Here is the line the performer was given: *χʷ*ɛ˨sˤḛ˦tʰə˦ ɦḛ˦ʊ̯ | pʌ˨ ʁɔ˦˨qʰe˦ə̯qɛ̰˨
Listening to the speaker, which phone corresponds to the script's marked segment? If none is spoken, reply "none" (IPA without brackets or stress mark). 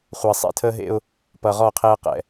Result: χʷ